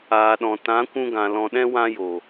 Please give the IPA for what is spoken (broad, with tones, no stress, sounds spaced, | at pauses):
aː˨ ɗ ɔ̃˨ t ã˨˦ kʷ ũ˧ ɡ ã˨ l ɔ̃˨ ɗ ɛ̃˧ w ã˦ j o˨